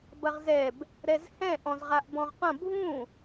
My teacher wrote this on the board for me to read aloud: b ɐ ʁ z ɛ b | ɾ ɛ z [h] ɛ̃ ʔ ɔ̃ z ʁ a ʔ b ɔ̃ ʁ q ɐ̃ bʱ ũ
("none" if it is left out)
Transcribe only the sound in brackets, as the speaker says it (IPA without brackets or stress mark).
h